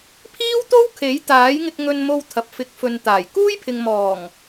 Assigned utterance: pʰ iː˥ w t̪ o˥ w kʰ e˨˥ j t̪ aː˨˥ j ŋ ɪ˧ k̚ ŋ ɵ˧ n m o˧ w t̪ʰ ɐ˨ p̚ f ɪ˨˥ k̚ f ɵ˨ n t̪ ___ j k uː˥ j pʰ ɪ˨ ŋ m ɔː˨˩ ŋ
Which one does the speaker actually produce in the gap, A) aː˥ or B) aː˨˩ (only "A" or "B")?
B